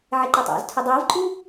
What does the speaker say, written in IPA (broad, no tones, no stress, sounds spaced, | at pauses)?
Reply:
ʕ ɪ ǃ ʌ tˤ ɑ̰ z tʰ ʊ dˤ əː v ǃʼ u